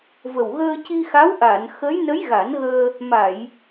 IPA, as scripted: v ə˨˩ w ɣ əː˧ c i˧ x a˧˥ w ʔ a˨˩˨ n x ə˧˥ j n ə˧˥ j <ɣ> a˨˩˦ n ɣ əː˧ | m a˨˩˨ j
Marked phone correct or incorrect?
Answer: correct